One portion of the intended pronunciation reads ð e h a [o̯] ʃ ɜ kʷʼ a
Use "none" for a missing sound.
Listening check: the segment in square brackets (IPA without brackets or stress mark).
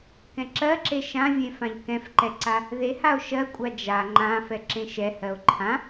o̯